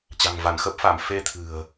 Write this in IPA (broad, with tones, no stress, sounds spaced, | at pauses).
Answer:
t͡ɕ a̤˨˩ ŋ v a˧˩ n x ə˦˥ p̚ f a˧˩ m f e˧ t̪ʰ ɨ̤˨˩ ə̯